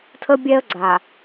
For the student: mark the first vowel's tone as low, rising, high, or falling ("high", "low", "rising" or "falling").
high